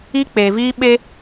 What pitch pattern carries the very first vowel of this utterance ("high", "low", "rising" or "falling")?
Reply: high